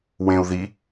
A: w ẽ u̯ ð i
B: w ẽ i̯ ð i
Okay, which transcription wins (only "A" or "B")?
A